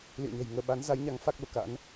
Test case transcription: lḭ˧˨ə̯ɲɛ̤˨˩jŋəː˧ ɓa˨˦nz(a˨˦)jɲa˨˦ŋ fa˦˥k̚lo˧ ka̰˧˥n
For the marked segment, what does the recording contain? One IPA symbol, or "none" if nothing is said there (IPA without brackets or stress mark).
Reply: a˨˦